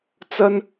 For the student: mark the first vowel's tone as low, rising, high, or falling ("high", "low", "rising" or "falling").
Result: high